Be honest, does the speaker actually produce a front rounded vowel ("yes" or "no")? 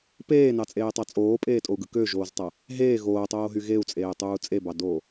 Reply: yes